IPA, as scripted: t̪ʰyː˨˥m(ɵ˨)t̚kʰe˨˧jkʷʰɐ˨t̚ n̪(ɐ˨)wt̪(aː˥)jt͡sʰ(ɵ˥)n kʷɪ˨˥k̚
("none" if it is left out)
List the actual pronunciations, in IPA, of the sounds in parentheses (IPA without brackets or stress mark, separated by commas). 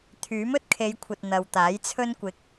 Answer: ɵ˥, ɐ˨, aː˨˥, ɵ˥